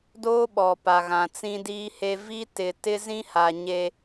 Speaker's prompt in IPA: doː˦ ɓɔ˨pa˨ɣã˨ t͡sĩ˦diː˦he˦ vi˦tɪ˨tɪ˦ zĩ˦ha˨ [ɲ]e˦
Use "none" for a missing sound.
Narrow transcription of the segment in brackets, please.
ɲ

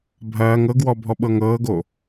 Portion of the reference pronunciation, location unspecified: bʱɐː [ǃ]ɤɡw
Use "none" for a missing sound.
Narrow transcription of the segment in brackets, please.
ŋ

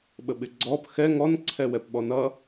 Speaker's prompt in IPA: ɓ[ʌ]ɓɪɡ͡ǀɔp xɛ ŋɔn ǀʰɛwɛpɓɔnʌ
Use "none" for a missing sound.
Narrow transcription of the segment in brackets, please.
ə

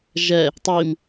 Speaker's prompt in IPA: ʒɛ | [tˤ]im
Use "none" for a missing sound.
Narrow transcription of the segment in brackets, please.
tˤ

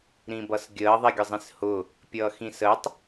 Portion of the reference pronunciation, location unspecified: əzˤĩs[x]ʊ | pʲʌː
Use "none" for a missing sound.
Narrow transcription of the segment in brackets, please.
h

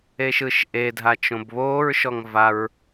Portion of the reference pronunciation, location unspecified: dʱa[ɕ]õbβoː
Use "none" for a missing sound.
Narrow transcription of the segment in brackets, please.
t͡ʃ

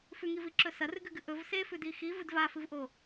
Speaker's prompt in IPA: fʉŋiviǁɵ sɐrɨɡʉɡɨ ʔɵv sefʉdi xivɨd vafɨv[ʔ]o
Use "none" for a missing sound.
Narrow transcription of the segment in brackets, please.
ʔ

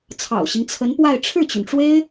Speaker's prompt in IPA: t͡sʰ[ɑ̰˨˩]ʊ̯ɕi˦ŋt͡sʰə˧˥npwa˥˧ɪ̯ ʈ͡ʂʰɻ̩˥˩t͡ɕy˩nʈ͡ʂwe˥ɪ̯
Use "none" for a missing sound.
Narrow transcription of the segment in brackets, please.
ɑ̰˨˩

